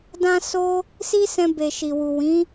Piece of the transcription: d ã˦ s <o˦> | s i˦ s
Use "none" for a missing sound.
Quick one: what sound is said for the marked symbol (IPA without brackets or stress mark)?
o˦